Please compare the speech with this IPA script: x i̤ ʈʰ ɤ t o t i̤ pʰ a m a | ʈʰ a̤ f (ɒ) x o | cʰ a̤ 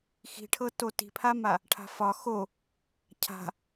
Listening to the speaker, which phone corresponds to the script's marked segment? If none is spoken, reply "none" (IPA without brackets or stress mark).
ɒ